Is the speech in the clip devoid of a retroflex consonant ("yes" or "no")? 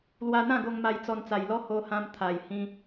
yes